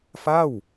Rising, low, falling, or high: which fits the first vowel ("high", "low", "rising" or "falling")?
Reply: falling